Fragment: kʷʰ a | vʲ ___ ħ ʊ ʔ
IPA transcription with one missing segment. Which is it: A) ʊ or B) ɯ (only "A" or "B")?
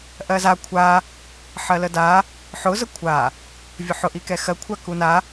A